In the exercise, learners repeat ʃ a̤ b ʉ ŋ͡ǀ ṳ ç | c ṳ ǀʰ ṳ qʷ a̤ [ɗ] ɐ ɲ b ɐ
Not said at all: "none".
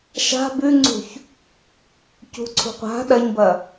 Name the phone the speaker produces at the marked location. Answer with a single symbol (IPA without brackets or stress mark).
ɗ